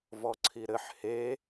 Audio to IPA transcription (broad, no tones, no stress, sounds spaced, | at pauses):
v ɔ ǀʰ i ɾ ɘ ħ h e